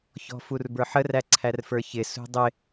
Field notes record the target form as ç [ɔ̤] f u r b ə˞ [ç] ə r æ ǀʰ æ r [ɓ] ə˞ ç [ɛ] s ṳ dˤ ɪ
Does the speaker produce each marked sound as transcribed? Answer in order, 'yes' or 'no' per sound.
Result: yes, no, no, no

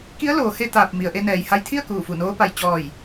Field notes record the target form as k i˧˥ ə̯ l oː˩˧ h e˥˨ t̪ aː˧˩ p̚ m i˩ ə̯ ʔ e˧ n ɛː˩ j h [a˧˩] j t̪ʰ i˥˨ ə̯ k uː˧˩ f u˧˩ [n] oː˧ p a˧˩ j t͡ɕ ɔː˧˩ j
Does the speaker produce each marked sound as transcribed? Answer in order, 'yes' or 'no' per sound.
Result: no, yes

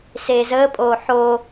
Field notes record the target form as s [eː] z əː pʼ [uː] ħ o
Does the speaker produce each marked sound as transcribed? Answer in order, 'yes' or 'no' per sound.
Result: yes, no

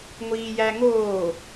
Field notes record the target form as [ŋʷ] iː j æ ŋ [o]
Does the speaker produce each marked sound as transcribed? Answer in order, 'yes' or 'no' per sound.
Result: yes, no

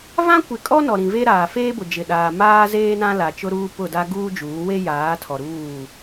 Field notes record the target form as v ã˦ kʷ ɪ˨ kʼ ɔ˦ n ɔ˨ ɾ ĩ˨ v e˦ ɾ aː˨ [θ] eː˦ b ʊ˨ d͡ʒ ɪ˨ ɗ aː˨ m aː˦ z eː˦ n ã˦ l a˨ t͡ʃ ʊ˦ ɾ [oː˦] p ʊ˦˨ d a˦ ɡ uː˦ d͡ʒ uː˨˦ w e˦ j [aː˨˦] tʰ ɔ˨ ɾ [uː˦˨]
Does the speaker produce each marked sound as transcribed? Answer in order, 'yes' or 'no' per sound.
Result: no, no, yes, yes

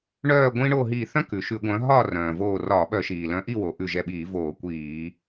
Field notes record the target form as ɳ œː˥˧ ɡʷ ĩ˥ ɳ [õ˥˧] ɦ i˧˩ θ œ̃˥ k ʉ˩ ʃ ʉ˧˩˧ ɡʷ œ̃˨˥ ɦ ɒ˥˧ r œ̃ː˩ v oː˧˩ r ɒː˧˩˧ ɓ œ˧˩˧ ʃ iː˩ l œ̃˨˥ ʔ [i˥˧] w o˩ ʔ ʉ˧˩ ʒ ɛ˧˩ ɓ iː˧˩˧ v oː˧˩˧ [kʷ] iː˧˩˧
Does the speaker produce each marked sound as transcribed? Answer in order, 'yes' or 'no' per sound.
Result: no, yes, yes

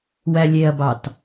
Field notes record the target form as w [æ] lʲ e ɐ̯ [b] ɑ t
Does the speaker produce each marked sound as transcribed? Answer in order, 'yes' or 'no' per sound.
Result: yes, yes

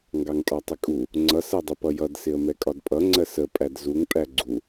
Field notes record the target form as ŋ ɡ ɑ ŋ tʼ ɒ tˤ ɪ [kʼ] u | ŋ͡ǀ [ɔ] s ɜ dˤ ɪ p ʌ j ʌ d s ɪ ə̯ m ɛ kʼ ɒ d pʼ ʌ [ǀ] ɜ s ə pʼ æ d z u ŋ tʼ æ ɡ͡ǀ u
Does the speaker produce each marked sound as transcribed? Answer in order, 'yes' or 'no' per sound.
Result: yes, no, no

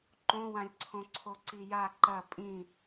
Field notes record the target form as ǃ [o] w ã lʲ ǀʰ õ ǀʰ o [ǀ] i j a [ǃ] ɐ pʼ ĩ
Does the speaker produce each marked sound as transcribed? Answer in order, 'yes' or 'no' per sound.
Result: no, yes, yes

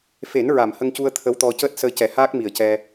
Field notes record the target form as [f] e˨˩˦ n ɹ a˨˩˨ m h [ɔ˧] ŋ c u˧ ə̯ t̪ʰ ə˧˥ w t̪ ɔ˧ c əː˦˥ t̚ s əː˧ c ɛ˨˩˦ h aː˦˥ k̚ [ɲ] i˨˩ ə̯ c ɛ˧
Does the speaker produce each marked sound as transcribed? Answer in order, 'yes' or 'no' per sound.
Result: yes, no, no

